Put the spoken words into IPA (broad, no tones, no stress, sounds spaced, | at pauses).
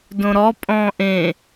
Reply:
d õ ɾ ɔ pʼ ɔ̃ː ʔ ẽ